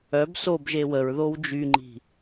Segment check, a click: present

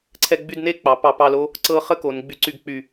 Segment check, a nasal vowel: absent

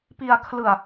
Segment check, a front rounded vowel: absent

